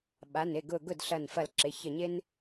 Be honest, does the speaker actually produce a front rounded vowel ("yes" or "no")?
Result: no